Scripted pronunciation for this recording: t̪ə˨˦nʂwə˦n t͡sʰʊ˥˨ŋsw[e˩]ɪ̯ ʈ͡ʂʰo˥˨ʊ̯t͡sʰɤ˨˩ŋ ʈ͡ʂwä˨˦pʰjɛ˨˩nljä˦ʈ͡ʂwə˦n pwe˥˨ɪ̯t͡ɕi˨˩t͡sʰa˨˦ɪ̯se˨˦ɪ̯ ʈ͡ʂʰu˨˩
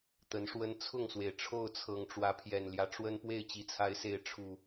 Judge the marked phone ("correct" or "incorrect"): correct